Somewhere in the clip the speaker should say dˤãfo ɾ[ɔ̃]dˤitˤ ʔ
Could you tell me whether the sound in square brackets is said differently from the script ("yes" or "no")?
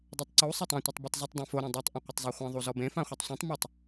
no